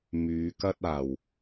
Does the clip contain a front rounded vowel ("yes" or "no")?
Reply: yes